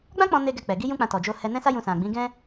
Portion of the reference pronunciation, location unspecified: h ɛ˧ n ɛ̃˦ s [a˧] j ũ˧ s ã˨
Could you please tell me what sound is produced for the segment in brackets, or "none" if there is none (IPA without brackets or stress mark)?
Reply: a˦